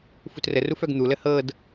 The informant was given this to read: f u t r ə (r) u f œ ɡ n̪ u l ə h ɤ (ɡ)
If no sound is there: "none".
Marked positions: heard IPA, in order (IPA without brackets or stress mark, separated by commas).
r, d